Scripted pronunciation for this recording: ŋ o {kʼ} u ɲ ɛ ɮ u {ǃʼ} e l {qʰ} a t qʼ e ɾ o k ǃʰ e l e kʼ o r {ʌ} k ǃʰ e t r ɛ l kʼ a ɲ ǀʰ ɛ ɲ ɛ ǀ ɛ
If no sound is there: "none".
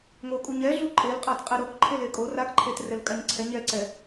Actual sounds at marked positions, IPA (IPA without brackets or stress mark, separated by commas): kʼ, ǃʼ, qʼ, a